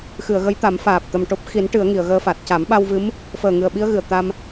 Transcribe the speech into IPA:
xɨ˨˩˨ə̯ɣə˧˥j t̪a˨˩˦m faː˨˩p̚ t̪ə˨˩m ʈo˦˥p̚ xi˨˩˦n ʈɨ˨˩˦ə̯ŋi˨˩˨ə̯ɣəː˧fa˨˩t̚ ca˨˩˦m ɓa˧wvɨ˧˥m | fəː˨˩ŋɨ˨˩ə̯ ɓi˧ə̯ɣɨ˨˩˨ə̯ t̪a˧m

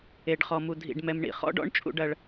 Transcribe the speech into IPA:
e˨ɖχɔ˨mu˨ dʱḭ˨ɖmɛ˨mɳḭ˨ χɔ̰˦ɖɔ̰˦ɳ t͡ʃʼṵ˦ɖɐ˦ɭ

